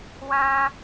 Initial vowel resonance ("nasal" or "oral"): nasal